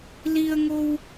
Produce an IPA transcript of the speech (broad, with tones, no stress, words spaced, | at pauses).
li˧ə̯ŋo˧w